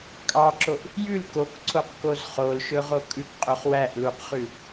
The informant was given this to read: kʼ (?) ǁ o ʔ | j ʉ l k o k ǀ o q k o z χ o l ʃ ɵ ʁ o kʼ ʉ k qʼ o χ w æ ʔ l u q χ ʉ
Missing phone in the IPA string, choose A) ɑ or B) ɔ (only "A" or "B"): A